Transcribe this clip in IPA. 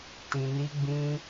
t ĩ˧ n i˦ ɡ͡b ĩ˦

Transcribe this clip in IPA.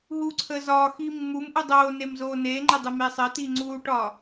ɦ u ǀʰ əː z ɒː x iː mː u m ʔ u dˤ oː n e m z oː n eː ŋ͡ǃ e dˤ əː m eː sˤ əː t iː ŋ͡ǀ uː ʈ ɒ

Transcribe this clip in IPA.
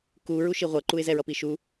k u ɹ u ʃ i ʁʷ ʌ ǃ u ɪ̯ z ɛ ɹ ʌ p i ʃ u

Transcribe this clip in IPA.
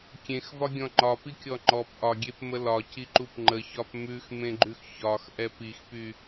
kʲ ẽ x v ɒ ɡʲ ɔ̃ ŋ͡ǃ ɒ p i kʲ ɔ ŋ͡ǃ ɔ p ʔ ɒ ɡʲ e p m ə l ɒ c i ǃ u p ŋ͡ǃ ə ç ɒ p m ʉ x m ẽ ɡ͡ǃ ʉ x ç ɒ x ʔ ɛ p i x p y

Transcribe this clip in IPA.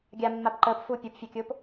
ɡʲ a mː a p ǃ əː p f u pʲ ʊ p fʲ a kʲ ʊː p

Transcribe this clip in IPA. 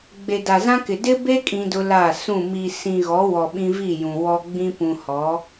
ɡ͡b e˨ d a˨ z ã˦ k ɪ˨ d ɪ˦ b e˦ kʼ ĩ˦ d ʊ˦ l a˦˨ s ũ˦˨ m i˨ s ĩ˨ ɣ ɔ˨˦ w ɔ˨ ɓ ĩ˦ v i˦˨ j ũ˨ w ɔ˦ ɡ͡b ĩ˦ p ũ˨ h ɔ˨˦

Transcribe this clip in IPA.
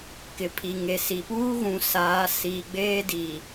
k ɪ˨ pʰ i˨ ŋ e˨ s i˨ p uː˦ ɣ ũ˨ s aː˨˦ s iː˨ ɡ͡b eː˦ d i˨

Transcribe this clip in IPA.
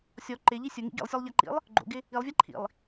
sʲ ɔ ǃ ɪ ʎ i sʲ ʊ ŋ ḭ ɡ ḭ lˠ sʲ ɔ lˠ ʎ a ǃ ḭ lˠ | ɡ͡ǃ o̰ ɡ ɪ | i lˠ vʲ a ǃʰ ḭ lˠ

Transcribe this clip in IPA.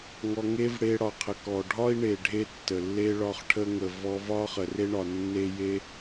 ŋ ɔ˧ ŋ e˦ v ɽ e˧ ɽ ɒ˨ qʰ ə˨ k ɔ˨ ɖʱ ɒ˦ i̯ ɳ e˨ ɖʱ e˧ tː ə˨ lː e˦ ɭ ɒ˦˨ χ ʈʰ ə˦ ŋ ə˨ v ɔ˧ v ɒ˦ χ ə˨ r e˦ ɳ ɒ˨ nː e˦ j e˦

